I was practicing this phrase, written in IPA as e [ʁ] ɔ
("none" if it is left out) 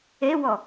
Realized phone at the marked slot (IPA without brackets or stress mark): w